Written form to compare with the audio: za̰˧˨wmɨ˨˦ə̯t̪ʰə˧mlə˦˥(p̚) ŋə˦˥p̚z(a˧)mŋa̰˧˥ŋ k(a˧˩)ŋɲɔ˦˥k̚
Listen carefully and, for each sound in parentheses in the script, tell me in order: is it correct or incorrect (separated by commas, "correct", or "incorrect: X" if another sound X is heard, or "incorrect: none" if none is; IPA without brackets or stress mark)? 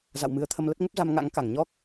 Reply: incorrect: t̚, correct, correct